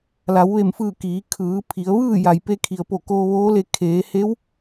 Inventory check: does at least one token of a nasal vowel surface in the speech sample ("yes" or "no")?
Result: no